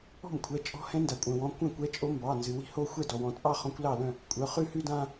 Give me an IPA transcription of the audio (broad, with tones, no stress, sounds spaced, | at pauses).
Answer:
ɔ̤˥˩ m kʷʰ ɛ˩˧˩ t͡ʃʼ ɔ̤˧˥ h ɛ̃˧˥ n d a˩ kʷʼ œ̃˩ w ɔ̃˩˧˩ kʷ ɛ̃˥˩ kʷ ɛ˧˥ t͡ʃʼ o˧˥ m b ɑ˩˧˩ n z ɨ˩ w i̤˥˩ h o˥˧ xʷ ɛ˥˩ d ɔ˩ w ɔ̃˩ t͡sʼ ɑ˥˧ χ ɔ̃˧˥ kʷ l ɑ˥˩ l œ̃˥˩ | kʷʼ œ˩˧˩ χ ʉ˥˧ h ʉ˥˧ d ã˥˧